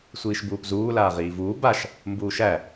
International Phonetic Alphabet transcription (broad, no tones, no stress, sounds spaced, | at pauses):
sʷ iː ʃ b uː p z uː l aː ʁ iː v uː b a ʃ | m b uː ʃ æ